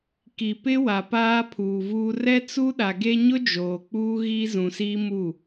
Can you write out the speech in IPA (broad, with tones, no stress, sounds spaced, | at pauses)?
k i˨ p ɪ˦ w a˨ p aː˦ pʰ uː˨ v uː˦ r ɛ˦ t͡s u˦ ɗ a˨ ɡ e˦ ɲ ʊ˦ d͡ʒ oː˨ k͡p uː˦ ɣ iː˦ z ũ˨ s iː˦ m u˦˨